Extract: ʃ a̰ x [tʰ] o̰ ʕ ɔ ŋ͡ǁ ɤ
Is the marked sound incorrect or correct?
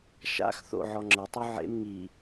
incorrect